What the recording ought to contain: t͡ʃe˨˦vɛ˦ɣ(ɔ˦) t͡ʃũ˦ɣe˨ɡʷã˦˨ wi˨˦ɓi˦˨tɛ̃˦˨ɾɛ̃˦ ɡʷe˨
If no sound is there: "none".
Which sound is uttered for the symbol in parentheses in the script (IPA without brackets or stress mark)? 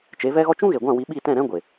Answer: ɔ˦